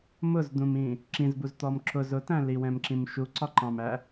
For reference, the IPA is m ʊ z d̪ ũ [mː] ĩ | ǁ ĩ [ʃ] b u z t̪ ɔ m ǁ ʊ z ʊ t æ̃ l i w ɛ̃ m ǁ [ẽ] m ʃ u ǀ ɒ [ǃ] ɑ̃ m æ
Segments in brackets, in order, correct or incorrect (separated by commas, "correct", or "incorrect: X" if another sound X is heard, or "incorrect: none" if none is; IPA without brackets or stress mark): incorrect: m, incorrect: z, incorrect: ĩ, correct